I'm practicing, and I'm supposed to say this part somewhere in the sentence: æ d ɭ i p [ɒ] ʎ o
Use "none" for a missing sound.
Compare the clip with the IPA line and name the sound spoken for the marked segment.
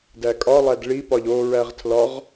ɒ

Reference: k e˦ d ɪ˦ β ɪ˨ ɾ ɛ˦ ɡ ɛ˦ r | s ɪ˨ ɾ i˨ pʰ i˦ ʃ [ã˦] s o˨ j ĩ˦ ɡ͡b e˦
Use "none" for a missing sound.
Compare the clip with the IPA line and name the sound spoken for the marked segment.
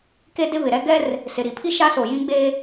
a˦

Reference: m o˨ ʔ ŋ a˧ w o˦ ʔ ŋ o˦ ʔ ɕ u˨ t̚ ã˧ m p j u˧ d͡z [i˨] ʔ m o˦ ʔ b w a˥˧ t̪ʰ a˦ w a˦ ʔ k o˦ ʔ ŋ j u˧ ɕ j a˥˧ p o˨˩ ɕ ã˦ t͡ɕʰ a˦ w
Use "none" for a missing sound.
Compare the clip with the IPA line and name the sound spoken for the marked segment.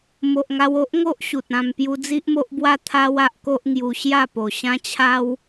i˦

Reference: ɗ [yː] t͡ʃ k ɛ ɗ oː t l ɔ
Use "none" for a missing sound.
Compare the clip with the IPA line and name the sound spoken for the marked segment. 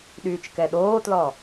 yː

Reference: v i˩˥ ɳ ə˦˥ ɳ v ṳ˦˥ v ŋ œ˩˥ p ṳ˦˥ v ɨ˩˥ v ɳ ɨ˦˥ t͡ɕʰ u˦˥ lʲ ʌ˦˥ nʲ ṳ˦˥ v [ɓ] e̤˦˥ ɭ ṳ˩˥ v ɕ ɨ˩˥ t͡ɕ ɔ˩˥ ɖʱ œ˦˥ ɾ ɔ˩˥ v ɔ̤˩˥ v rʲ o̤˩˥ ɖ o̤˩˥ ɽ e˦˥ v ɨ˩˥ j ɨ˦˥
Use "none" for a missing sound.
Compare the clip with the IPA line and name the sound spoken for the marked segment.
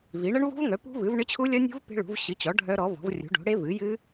p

